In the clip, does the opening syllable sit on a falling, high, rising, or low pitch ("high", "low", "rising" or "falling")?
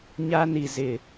high